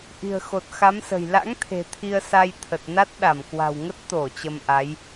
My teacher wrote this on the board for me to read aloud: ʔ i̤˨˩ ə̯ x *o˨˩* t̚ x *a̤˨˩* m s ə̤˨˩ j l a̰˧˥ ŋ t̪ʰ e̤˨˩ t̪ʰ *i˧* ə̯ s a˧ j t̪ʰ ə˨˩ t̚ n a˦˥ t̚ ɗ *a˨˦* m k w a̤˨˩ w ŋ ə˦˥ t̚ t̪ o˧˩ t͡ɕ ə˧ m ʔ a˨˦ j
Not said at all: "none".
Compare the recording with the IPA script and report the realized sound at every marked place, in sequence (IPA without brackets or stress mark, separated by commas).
o˨˩, a˨˦, i˧, a˧˩